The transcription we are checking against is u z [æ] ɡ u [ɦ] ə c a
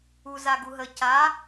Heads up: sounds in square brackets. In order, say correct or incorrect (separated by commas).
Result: incorrect, correct